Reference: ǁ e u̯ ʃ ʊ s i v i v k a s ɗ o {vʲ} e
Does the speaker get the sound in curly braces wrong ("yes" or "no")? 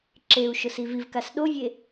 no